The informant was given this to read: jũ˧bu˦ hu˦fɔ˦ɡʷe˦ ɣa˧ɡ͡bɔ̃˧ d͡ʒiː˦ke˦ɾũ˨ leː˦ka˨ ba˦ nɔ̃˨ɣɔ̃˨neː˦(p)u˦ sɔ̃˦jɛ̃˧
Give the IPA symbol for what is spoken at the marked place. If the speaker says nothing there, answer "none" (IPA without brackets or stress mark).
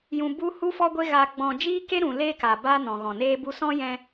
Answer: b